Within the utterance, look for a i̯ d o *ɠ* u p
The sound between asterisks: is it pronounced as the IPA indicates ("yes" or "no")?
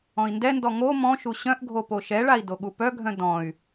yes